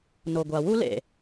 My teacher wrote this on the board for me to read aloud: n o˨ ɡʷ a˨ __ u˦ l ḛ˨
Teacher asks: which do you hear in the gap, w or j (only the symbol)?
w